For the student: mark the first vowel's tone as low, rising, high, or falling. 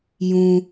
high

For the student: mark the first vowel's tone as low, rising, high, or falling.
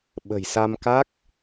low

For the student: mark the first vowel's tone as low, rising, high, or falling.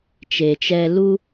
low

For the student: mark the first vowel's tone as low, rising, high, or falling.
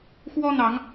high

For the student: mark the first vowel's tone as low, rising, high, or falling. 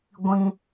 high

